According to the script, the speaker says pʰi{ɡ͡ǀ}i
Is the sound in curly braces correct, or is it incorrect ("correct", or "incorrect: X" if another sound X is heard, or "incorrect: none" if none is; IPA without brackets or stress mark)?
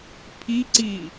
incorrect: ǀ